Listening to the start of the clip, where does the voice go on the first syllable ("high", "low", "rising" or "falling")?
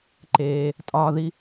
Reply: low